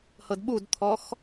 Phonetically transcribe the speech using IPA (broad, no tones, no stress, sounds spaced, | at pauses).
h ɤ d ɓ u d t̪ʰ ɔ x